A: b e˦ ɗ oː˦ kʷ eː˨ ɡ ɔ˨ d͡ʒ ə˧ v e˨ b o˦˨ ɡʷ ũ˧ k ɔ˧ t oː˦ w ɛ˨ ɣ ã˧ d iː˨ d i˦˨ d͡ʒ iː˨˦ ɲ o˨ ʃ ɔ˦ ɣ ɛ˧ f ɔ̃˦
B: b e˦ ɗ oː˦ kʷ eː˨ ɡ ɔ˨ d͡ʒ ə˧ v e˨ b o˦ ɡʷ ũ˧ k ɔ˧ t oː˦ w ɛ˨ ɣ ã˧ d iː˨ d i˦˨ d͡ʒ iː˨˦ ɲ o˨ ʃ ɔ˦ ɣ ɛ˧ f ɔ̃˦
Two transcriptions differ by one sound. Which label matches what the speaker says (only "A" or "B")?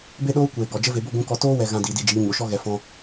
A